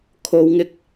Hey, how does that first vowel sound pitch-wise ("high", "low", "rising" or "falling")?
low